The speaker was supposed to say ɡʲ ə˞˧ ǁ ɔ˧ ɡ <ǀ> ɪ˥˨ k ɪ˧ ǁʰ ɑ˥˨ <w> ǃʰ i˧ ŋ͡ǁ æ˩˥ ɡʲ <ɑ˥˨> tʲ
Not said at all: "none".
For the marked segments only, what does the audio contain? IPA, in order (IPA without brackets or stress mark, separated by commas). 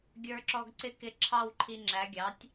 ǀ, w, ɑ˩˥